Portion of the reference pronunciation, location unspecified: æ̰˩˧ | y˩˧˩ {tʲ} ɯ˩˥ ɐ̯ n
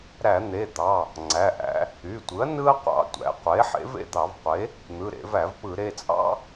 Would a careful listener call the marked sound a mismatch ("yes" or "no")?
yes